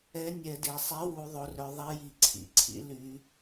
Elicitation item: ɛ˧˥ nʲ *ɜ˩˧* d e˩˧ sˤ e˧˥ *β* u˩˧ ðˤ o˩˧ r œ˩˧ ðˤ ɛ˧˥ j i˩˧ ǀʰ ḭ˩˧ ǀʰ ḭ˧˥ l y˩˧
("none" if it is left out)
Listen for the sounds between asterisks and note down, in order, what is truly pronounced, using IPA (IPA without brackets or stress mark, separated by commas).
ɛ˩˧, w